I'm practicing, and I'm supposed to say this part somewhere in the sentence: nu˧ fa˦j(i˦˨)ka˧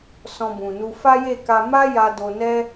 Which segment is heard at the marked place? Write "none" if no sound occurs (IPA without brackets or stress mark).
e˦˨